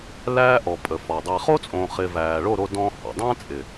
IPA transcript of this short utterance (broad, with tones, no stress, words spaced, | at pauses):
læː˦ʔɔ˨ pʼə˨fɔ˨dˤæ˧ χo˦t͡sʼõ˨χɪ˨ væː˨ɭo˦˨ɾo˧ dɔ̃˦hɔ̰˨ dˤæ̃˦t͡sʼɪ˨